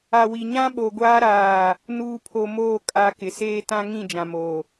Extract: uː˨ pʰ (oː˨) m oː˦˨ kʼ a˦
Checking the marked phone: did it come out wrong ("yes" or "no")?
yes